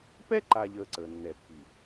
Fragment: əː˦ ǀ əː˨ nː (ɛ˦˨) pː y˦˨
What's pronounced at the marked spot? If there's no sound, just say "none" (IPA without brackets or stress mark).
ɛ˦˨